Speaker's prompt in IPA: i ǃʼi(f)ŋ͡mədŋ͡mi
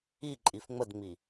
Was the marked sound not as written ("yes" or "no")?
no